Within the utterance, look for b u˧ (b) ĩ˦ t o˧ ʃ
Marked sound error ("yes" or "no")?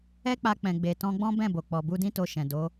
yes